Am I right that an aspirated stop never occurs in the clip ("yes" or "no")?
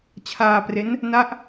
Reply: no